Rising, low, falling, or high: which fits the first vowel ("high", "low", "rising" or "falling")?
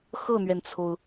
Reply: falling